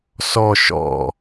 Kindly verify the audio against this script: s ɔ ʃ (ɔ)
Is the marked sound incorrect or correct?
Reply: incorrect